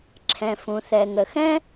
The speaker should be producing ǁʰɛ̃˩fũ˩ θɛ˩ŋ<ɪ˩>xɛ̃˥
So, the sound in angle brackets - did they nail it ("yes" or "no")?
no